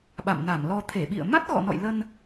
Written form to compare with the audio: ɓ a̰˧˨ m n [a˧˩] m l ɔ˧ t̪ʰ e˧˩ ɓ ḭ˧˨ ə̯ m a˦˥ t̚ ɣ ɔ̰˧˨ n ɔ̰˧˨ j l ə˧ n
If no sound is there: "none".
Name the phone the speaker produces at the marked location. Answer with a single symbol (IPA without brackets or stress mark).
a˧˩